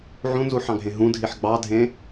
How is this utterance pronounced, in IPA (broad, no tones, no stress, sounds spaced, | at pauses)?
ʕ ũ n z u ħ ɑ̃ ɡʱ ẽ ɦ ũ dʱ i ħ ɡ͡b ɑ dʱ ẽ